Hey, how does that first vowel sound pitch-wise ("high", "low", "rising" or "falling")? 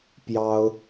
high